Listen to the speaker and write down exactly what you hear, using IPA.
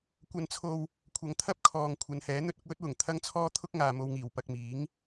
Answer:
kʷ ɐ˧ n t͡sʰ o˧ w | kʷʰ ɐ˨ ŋ t̪ʰ ɐ˥ p̚ kʰ ɔː˨ ŋ kʷʰ ɐ˨˧ n h ɛː˨˥ n̪ ɵ˥ t̚ ʊ˧ k̚ w ɵ˨˥ t̚ w ʊ˨˩ ŋ t̪ʰ ɐ˥ ŋ t͡sʰ ɔː˥ t̪ʰ ʊ˥ k̚ ŋ aː˨ m o˧ w ŋ iː˨˩ w p ɐ˧ k̚ m iː˨˥ ŋ

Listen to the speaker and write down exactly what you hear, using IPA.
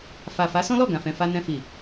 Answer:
f a˨ f a˨˦ s ɔ̃˦ l ɔ˦˨ ɡ ã˨ f ɛ̃˨ f a˧ n ɛ̃˧ f i˨

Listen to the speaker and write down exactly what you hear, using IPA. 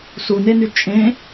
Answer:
s u n e n y t͡ʃʼ ẽ

